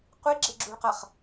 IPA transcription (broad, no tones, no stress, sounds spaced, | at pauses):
qʷ i ɡ͡ǁ e ɡ͡ǁ u ɭ q ɐ χ